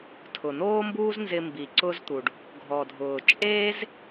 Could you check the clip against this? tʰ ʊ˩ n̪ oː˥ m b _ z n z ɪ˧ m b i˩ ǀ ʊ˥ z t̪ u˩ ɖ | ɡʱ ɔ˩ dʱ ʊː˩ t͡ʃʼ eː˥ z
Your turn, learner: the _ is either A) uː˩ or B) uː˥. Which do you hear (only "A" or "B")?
B